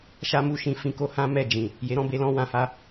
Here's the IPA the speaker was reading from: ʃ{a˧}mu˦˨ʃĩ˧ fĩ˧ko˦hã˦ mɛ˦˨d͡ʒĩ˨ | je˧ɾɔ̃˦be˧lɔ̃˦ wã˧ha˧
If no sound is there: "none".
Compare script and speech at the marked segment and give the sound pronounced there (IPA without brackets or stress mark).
a˦